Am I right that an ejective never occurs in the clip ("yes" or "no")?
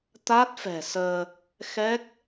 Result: yes